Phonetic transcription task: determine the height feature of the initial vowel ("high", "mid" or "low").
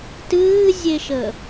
high